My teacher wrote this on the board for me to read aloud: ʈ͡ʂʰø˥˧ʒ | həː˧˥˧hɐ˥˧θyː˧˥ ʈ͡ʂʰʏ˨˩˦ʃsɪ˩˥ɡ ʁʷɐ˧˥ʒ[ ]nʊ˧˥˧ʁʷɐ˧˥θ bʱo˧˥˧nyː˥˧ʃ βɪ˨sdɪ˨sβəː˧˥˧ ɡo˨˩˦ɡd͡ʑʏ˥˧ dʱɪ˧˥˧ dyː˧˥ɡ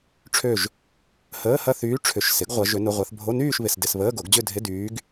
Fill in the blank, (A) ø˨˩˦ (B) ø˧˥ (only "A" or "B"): B